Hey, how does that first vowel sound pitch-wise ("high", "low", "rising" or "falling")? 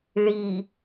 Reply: low